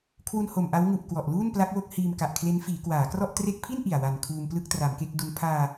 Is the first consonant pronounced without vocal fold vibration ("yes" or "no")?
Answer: yes